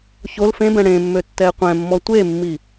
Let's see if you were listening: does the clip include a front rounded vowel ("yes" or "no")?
yes